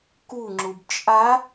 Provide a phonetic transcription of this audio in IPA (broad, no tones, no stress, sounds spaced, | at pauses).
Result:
k u ŋ͡ǁ u b t͡ʃʼ a